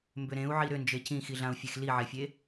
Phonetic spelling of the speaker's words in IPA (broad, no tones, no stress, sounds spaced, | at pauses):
m b ʏ ɾ ẽ u̯ ʕ i ɾ ʏ n d͡ʒ e c ĩ x i ɮ ã u̯ fʲ e x l i ʕ e fʲ e